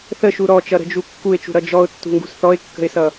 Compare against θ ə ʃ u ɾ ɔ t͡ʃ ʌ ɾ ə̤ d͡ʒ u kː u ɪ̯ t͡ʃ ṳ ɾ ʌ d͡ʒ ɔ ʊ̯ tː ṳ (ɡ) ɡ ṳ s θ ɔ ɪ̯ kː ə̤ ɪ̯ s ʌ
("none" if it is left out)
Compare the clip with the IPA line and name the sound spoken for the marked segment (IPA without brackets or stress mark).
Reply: ŋ